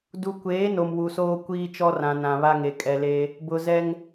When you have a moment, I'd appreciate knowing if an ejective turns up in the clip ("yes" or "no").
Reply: yes